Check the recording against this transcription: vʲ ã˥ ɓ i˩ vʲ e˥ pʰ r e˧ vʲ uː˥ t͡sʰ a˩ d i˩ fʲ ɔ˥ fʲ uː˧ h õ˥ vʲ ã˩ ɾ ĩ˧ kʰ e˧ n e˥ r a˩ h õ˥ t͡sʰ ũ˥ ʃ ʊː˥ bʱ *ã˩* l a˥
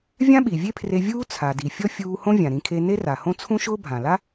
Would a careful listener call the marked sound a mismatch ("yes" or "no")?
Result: no